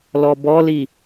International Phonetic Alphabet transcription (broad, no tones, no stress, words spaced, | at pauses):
lɔbɔli